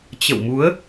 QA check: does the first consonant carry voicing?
no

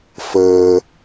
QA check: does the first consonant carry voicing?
no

